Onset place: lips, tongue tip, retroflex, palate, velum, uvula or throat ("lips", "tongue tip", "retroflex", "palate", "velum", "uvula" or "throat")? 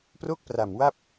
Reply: lips